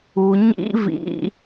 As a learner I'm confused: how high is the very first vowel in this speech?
high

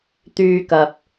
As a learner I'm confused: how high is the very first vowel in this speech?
high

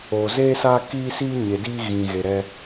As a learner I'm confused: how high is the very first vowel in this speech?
mid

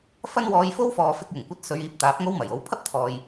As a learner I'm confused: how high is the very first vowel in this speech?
low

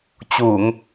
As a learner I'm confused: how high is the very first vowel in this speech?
high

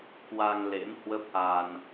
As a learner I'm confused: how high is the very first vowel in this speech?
low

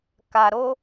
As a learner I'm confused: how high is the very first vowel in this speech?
low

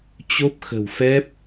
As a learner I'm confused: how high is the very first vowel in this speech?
mid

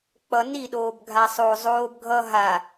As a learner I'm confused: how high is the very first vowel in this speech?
mid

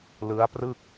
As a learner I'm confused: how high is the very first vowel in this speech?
high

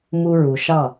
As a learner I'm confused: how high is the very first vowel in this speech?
high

